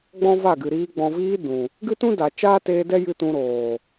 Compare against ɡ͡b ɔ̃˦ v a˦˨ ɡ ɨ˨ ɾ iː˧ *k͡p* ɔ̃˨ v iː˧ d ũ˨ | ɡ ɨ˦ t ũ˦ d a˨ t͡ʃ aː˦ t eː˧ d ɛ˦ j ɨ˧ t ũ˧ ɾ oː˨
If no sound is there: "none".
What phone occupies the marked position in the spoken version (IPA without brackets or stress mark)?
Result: ɡ͡b